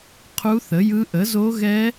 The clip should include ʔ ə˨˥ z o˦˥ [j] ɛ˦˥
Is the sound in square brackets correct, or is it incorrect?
incorrect